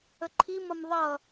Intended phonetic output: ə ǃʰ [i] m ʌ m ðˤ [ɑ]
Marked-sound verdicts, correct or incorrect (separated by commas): correct, incorrect